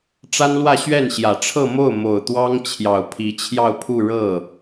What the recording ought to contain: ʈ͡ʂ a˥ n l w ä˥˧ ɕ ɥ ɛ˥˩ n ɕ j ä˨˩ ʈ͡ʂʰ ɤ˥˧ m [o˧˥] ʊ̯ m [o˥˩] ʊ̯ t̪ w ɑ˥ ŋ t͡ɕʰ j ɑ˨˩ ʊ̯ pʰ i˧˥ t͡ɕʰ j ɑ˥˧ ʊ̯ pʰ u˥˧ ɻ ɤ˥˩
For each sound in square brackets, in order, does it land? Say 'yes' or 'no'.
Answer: no, no

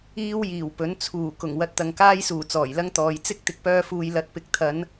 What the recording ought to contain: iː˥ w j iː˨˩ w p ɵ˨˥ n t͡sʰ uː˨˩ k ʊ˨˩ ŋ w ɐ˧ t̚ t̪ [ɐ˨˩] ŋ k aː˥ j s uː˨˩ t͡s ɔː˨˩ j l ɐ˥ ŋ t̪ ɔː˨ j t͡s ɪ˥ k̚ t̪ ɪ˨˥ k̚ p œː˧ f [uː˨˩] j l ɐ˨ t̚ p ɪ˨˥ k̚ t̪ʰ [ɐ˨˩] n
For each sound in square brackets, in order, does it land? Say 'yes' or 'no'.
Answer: no, no, no

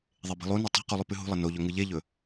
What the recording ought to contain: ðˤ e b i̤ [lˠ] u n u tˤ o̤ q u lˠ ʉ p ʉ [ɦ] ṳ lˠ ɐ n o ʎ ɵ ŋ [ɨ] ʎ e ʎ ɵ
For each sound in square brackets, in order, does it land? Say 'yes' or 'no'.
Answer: yes, yes, yes

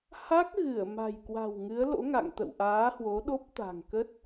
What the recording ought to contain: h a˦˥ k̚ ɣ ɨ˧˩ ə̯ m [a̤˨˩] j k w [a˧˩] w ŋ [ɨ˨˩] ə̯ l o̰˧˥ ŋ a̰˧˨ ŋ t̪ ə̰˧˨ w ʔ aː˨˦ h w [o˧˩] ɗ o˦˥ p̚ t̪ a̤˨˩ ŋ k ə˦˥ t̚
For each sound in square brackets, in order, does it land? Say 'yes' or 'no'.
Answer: yes, no, no, no

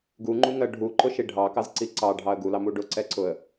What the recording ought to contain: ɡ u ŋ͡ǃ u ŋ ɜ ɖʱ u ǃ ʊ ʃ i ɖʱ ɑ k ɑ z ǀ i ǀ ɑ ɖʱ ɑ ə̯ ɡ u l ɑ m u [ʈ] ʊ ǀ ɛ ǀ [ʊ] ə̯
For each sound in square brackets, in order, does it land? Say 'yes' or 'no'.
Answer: no, yes

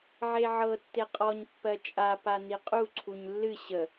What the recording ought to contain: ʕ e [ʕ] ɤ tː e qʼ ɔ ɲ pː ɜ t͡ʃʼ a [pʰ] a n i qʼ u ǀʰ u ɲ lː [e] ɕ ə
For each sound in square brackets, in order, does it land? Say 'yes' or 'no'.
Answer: yes, no, no

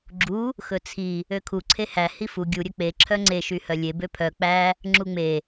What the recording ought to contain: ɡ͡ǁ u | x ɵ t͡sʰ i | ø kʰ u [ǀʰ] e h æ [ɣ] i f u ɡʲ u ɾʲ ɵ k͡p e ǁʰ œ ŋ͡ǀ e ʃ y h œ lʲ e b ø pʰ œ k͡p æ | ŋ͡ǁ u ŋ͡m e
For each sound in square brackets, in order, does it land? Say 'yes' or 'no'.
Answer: yes, no

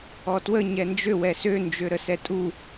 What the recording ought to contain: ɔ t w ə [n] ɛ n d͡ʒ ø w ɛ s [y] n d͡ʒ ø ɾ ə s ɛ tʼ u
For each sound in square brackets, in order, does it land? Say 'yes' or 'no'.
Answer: no, no

